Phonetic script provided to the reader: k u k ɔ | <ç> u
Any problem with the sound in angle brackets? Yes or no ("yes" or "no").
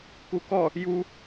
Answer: yes